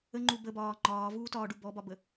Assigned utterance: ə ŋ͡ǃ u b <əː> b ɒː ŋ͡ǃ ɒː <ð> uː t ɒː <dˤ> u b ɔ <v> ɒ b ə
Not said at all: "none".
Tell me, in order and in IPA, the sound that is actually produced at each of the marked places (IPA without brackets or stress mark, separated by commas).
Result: ə, v, ɖ, b